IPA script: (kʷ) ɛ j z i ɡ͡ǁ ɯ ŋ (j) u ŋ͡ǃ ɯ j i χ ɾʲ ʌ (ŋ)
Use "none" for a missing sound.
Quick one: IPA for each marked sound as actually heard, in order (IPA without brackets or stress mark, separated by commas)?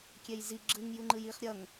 kʲ, j, ŋ